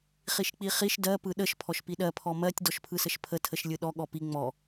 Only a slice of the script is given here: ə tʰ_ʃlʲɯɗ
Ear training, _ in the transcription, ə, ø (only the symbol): ə